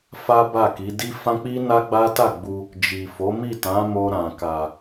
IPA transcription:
f a˦ b a˦˨ k i˨˦ d i˦ f ã˦ k͡p i˦ n a˦ ɡ͡b a˦ t a˦˨ ɡ͡b u˧ | d͡ʒ i˨ f o˨˦ m i˦˨ t ã˨˦ m o˧ ɾ ã˨ k a˨

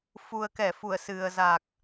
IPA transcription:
f u˨˩ ə̯ k ɛ˧˩ f u˧˩ ə̯ s ɨ˨˩ ə̯ z a˨˩ k̚

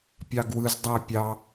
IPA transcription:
pʲ ɑ ɡ w ɯ z dˤ æ pʲ ɑ

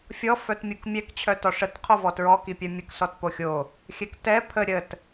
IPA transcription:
fʲ ɔ f œ t mʲ u k mʲ ɛ k t͡ɕʰ œ t ɔ ʂ ə t qʰ o v ɔ t ɹ ɔ k i pʲ œ mʲ ə k s ɔ t p o xʲ o | xʲ ɛ k t ɛ pʰ ə ɾʲ ə t

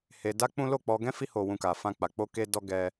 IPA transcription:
h e˧ d a˦ k͡p ũ˦ l o˦˨ k͡p ɔ˧ ɡ ɛ̃˦ f i˦ h o˧ w ũ˧ k a˧ f ã˦ k͡p a˧ k͡p o˧ k e˧ d ɔ˧ ɡ ɛ˧

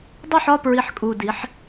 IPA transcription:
dˤ o˥˨ ħ ɒ˥˨ p ɹ i˨˩ ħ kʼ u˨˩ d i˩˧ ħ

